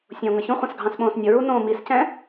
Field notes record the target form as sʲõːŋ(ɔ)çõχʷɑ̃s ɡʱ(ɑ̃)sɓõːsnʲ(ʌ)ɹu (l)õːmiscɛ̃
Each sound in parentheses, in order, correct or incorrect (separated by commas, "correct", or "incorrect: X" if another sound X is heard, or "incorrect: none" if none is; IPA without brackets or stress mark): incorrect: ʌ, correct, correct, incorrect: n